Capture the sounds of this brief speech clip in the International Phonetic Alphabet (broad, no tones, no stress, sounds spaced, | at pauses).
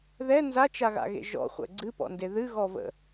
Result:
ð ɛ n z a t͡ʃ a ɣ a̰ ɣ ḛ ʒ ɔ̰ χʷ ɛ̰ ɡ͡ǀ ɨ p ɔ̰ n d e ð ɨ ɣ ɔ v ə̰